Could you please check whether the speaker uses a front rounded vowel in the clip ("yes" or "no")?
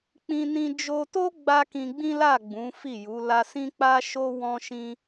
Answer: no